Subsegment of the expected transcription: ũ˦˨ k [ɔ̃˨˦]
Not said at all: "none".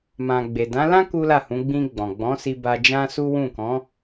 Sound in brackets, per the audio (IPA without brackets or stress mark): ɔ̃˨˦